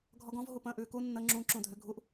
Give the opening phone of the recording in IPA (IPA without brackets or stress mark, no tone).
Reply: ɡʱ